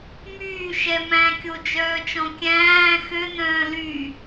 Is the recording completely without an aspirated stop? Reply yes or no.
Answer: yes